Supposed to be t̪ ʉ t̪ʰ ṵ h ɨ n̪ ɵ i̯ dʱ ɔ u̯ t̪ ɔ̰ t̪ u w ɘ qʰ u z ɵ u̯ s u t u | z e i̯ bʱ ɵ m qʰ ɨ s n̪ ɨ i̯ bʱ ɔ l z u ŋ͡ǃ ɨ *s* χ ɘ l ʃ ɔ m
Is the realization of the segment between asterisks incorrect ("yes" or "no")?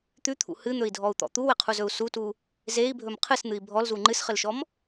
no